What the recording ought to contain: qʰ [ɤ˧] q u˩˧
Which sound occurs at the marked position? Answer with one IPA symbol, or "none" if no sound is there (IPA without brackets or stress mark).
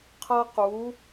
ɤ˧